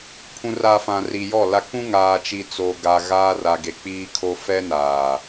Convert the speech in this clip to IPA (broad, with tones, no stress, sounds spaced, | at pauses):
pʰ ũ˨ r a˨ f ã˨ r i˨ j ɔ˦˨ l a˦ k ũ˦ ŋ aː˨ t͡ʃ i˨ t͡s oː˨ ɡ a˨ ɣ aː˦ r a˨ ɡ e˨ k͡p iː˦ kʰ o˦ f ɛ˦ n aː˨